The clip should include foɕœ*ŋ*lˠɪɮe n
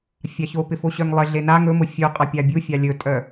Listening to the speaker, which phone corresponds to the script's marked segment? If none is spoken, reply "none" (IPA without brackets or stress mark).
ŋ